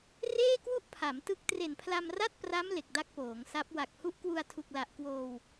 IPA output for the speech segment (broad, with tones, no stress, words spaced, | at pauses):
reː˥˩kwu˥˩ʔ pʰa˩˦mtɯ˦˥k̚ tre˨˩npʰla˧mra˥˩t̚ pra˦˥m le˨˩k̚da˦˥k̚poː˩˦ŋsa˦˥p̚ wa˨˩k̚hu˦˥ʔ kwu˧a̯tʰu˨˩k̚la˨˩ʔ kwoː˧w